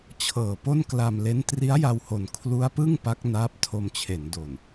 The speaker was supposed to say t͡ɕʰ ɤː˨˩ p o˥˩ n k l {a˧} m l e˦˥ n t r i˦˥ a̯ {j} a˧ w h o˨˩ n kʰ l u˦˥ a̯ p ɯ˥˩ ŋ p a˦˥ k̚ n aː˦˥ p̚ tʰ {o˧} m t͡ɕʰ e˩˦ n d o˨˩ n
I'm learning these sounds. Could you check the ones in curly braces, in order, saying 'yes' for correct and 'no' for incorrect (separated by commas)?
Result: yes, yes, yes